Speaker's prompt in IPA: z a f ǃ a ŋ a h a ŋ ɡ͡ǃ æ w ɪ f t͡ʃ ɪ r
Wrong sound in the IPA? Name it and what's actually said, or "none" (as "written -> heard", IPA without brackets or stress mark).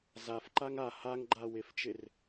æ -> a